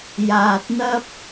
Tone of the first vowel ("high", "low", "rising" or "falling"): low